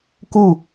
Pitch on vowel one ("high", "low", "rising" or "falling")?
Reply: falling